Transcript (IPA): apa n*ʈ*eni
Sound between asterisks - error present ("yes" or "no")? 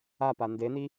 yes